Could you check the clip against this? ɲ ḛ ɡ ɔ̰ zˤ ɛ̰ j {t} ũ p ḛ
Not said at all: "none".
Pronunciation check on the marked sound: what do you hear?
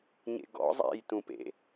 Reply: t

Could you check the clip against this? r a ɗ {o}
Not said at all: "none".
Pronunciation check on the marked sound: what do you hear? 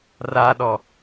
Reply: ɔ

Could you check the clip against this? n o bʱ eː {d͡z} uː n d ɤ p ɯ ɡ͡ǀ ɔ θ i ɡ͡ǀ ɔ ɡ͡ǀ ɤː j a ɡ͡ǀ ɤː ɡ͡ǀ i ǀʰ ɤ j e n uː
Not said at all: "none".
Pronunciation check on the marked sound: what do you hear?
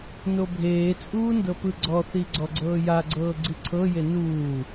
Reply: t͡sʼ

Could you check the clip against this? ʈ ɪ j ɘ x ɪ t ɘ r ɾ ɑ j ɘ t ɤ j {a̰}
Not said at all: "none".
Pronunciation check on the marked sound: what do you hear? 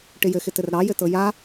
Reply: a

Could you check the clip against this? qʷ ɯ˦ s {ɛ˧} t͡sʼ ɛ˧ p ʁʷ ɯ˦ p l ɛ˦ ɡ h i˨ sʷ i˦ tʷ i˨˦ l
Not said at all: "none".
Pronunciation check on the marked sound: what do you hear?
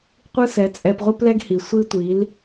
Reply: ɛ˨˦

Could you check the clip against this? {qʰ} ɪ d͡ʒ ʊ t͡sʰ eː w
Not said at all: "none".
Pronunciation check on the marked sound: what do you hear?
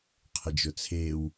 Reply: qʰ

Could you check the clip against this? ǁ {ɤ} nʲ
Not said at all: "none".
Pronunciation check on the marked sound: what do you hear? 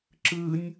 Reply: ɯ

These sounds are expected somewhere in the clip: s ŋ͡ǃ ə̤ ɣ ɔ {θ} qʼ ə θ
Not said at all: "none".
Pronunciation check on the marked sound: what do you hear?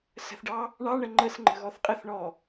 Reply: θ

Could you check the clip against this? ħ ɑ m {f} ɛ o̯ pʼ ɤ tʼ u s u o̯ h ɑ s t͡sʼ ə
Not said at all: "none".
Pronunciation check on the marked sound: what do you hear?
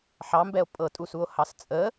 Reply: b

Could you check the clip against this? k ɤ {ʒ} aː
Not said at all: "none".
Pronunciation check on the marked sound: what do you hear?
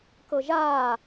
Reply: ʒ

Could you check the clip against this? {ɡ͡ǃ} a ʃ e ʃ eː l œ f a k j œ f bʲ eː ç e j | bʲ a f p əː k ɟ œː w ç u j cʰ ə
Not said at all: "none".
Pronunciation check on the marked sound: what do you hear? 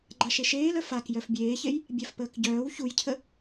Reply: ɡ͡ǃ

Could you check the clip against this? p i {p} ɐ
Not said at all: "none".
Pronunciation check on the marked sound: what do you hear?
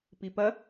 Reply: p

